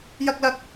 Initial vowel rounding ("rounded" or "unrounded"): unrounded